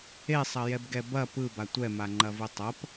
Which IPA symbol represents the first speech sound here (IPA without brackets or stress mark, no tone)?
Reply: e